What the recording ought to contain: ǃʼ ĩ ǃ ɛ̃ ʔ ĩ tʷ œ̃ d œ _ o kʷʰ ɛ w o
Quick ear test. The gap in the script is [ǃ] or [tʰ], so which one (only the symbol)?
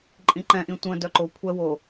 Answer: ǃ